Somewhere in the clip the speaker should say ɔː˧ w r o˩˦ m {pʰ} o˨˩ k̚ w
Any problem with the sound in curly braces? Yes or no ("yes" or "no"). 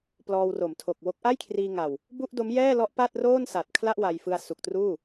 yes